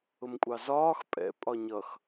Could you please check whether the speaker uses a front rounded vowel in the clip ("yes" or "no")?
no